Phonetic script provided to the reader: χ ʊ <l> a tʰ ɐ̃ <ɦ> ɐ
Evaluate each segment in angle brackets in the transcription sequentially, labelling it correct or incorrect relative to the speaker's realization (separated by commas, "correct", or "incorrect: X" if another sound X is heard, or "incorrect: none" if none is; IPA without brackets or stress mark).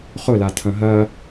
correct, correct